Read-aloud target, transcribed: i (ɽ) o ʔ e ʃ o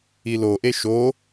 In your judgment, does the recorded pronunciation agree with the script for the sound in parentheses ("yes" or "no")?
no